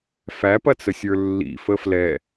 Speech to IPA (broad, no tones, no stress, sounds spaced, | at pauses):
f æ p ɐ t͡s ə sʲ ə˞ lː ḭ f ə f l ɛ